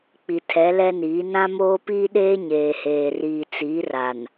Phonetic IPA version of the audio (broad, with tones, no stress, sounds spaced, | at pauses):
k͡p i˨ tʰ ɛ˨˦ l ɛ˦ n iː˨˦ n ã˦ m oː˦ p iː˦ ɗ eː˦ ɲ eː˨ h eː˨ r iː˨ t͡s iː˨˦ r a˨ n